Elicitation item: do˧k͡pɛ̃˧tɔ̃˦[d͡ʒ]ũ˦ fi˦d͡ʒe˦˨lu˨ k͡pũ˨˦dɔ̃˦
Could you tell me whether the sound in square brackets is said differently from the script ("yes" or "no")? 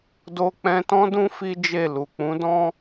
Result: yes